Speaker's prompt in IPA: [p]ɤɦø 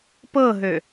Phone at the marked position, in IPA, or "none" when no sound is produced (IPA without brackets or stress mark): p